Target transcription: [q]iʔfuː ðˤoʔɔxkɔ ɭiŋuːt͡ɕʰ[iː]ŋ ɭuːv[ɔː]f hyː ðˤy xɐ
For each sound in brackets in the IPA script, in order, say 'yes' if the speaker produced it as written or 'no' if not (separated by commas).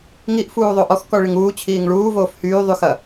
no, yes, no